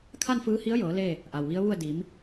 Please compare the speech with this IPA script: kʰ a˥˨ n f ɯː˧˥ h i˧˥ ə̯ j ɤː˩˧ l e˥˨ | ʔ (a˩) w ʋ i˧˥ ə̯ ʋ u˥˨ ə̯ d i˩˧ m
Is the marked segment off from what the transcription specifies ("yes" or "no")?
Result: no